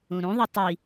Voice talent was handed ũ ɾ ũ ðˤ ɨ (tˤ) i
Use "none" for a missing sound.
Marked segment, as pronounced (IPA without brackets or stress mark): tˤ